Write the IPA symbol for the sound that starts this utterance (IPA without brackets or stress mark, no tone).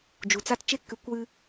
d͡ʒ